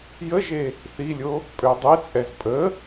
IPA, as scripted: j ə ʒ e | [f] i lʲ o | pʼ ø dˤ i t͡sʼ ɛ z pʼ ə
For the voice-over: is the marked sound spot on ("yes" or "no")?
no